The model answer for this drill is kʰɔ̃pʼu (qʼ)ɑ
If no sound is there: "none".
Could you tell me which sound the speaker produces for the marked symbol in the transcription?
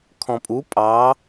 pʼ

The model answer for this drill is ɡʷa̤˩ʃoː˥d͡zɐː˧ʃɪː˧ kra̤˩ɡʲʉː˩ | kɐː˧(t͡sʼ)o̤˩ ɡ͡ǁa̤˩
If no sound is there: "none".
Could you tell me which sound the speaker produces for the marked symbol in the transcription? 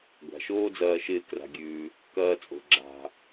t͡sʼ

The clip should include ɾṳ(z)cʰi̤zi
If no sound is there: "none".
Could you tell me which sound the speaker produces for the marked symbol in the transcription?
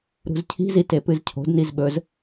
z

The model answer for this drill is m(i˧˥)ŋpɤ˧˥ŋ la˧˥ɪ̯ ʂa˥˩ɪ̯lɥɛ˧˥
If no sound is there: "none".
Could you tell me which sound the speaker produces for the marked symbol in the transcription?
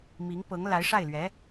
i˧˥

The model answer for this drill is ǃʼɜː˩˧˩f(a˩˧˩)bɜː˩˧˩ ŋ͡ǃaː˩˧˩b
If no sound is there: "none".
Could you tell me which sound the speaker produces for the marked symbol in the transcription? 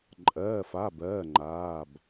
a˩˧˩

